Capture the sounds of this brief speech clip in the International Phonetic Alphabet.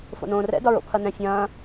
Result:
f o̰ n õː r ɛ̰ d ɒ ɹ o̰ pʰ ɐ n ɛ̃ fʲ ɐ̃ː

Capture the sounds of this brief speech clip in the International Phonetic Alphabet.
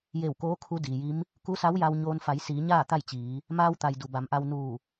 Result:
j e˧˩ w k oː˧˥ kʰ u˧˥ d iː˩ j i˧˥ m | k u˧˥ s a˧˥ w j a˧ w ɲ oː˧ n f a˩˧ j s iː˩˧ ɲ aː˥˨ t̪ a˥˨ j t͡ɕ iː˩˧ | m aː˧ w t̪ a˩ j d u˩ b a˩˧ m ʔ a˧ w n uː˧˩

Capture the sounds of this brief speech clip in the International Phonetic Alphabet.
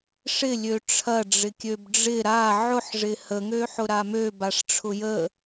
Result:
ʂ ɪ lʲ ø ʈ͡ʂʰ ɐ ɖ͡ʐ ɪ kʲ ø b ɖ͡ʐ ɪ ɾ a ʕ ʊ ħ ʐ ɪ h ə ŋ ø ħ ʊ ɾ a m ø b a ʂ ʈ͡ʂʰ ʊ j ə

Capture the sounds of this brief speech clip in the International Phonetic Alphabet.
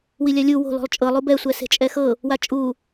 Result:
w i lʲ a lʲ u w o̤ l ɔ̤ lˠ t͡ʃʼ ɤ lˠ u b ɛ sʷ ɛ s e̤ t͡ʃʼ ɛ x ɤ | w a t͡ʃʼ u

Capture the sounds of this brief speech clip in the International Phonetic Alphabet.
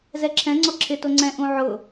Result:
z ɛ ǁʰ ɛ̃ ŋ͡ǀ ɔ ǁʰ ɪ t o ŋ͡ǀ ɛ̃ ʔ ũ ʕ ʊ

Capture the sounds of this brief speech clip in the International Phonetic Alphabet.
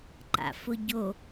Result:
ǃ a̰ f ʊ ɟ o

